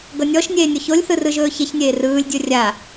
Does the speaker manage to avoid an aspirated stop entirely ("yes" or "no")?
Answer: yes